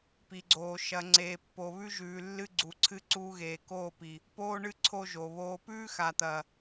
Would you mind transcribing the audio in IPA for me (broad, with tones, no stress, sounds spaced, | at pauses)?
p i˨ ɡ͡ǀ oː˨ ʃ ɐ˨ ŋ͡ǀ eː˨ pː o˨ β ʉ˦ ʒ ʉː˨ lː ɨ˦ ɡ͡ǀ u˨ ǀʰ ɨ˦ ǀ uː˦ ɣ eː˨ k oː˦˨ p i˨ | p oː˦ ɳ ɨ˦ ǀʰ o˦ ʒ o˨ β oː˦ p ʉː˦ x a˨ t̪ ɐ˨